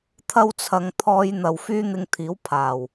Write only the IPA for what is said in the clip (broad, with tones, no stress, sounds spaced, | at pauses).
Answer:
t̪ʰ ɐ˥ w t͡sʰ ɐ˧ ŋ t̪ʰ ɔː˧ j n̪ ɐ˨ w f yː˥ n̪ ɪ˧ ŋ t̪ʰ iː˨˥ w pʰ aː˨˩ w